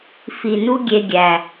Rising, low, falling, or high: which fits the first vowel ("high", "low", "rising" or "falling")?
low